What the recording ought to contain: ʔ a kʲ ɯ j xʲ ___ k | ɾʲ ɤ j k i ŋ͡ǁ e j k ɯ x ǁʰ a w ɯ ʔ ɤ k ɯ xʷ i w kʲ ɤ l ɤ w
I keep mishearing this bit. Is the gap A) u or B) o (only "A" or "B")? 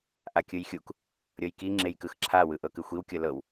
A